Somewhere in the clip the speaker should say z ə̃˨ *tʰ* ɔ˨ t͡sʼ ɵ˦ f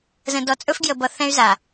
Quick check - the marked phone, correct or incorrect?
incorrect